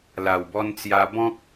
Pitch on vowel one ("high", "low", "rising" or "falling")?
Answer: low